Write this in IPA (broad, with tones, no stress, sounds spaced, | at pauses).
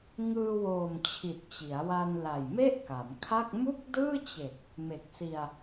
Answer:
ŋ ɯː˧ w oː˨˩ m t͡ɕʰ i˨˩ t̚ t͡ɕ i˩˦ a̯ w a˧ n l a˨˩ j m e˥˩ ʔ k a˩˦ m kʰ a˥˩ k̚ m u˥˩ k̚ d ɯː˥˩ t͡ɕ e˨˩ k̚ | m e˨˩ k̚ s i˧ a̯